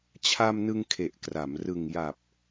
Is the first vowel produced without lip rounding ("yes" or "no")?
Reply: yes